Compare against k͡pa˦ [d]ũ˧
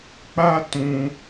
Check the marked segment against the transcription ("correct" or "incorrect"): incorrect